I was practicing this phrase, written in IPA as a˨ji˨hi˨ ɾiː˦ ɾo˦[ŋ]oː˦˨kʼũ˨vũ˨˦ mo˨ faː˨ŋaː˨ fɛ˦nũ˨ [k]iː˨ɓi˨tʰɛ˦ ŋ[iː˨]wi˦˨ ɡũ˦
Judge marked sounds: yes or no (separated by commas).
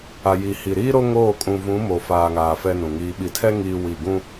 yes, no, no